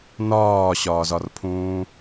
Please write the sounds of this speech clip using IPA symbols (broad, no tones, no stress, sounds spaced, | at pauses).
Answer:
n ɒː ɕ ɒː z ɒ r pʰ ũː